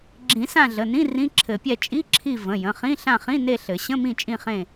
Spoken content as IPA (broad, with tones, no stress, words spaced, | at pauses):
ɡ͡ǁĩ˨˩˦ sã˦˨ɮə˩˧˩nĩ˧˥˧ rĩ˧˥˧ǁʰɘ˨˩˦pʲɛ˦˨ t͡ʃʼi˧˥˧ǁʰi˦˨ və̃˩˧˩jə̃˩˧˩χĩ˧˥˧ ɬã˦˨χĩ˧˥˧ ne˦˨ɬɘ˨˩˦ ɕə̃˧˥˧mĩ˦˨ t͡ʃʼĩ˦˨χẽ˦˨